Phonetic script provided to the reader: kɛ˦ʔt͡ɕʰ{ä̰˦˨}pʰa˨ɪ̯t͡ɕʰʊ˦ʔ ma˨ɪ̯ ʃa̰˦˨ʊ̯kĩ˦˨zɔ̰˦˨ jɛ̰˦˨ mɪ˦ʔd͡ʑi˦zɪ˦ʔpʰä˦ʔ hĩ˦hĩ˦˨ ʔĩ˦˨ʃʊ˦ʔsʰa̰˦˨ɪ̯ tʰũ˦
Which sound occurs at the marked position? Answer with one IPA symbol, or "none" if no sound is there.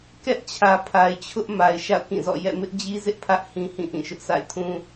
ä˨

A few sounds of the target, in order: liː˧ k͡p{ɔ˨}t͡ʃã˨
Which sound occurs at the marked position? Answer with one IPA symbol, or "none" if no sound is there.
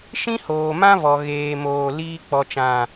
ɔ˨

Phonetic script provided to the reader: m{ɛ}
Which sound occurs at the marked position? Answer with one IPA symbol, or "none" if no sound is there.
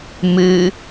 ɨ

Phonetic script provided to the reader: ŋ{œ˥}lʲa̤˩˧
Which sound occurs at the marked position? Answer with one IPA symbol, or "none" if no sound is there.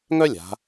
œ˥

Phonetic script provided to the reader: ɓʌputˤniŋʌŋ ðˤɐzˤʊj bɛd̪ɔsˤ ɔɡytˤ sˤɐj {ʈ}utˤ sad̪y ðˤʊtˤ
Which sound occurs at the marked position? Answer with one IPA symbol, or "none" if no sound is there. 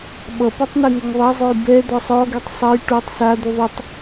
ʈ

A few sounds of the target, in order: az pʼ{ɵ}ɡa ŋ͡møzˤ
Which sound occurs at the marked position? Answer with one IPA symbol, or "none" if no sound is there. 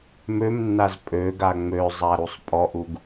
ø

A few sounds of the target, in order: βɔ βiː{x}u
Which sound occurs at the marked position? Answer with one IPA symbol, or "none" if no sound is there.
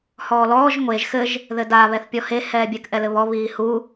h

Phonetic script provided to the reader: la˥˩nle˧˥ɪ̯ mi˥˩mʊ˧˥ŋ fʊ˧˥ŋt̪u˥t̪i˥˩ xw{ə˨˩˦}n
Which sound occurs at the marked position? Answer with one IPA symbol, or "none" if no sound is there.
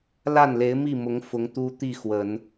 ə˨˩˦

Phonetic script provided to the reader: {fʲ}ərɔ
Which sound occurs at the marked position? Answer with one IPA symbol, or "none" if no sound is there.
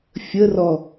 fʲ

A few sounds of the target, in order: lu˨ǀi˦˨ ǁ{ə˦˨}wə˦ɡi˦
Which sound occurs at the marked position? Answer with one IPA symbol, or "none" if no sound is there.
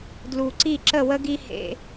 ə˦˨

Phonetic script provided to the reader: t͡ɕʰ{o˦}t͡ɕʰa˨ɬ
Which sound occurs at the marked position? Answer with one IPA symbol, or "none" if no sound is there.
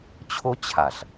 o˦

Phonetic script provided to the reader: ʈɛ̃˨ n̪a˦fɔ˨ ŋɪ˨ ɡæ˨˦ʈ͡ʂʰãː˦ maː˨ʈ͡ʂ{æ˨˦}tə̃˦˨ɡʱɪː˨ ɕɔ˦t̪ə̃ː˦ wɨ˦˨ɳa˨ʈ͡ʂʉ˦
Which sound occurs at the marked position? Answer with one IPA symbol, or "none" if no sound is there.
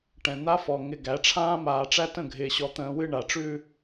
æ˦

